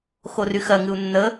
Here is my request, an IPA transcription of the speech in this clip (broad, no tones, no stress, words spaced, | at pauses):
xoryxɜŋɨu̯ nːə